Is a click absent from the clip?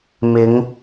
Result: yes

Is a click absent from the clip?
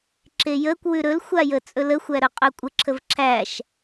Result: no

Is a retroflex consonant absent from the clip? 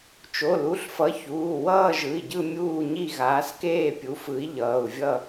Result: yes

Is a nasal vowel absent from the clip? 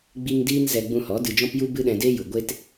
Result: no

